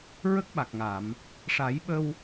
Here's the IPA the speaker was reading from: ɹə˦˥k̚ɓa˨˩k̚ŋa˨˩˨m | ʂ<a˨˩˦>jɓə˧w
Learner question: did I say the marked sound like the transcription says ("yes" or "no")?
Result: yes